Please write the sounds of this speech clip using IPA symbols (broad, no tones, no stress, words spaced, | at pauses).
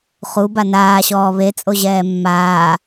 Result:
χuba naːɕɔː βet͡sʼoʑɛː mːaː